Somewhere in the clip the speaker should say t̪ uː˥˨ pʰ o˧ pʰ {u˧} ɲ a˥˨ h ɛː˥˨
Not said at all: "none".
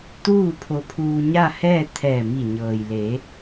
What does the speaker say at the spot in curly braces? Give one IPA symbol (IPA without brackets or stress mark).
uː˧